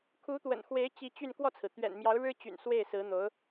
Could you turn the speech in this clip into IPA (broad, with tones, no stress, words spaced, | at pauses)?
kʰu˧˥t̪wə̰˨˩nxwe˧˥ɪ̯ t͡ɕi˧˥t͡ɕy˥˧n kwɔ˥˩t͡sʰɹ̩˩ t̪ɥɛ̰˨˩nmjɑ˧˥ʊ̯ɻɻ̩˥t͡ɕy̰˨˩n swe˥˩ɪ̯sɹ̩˧˥n̪o˧˥ʊ̯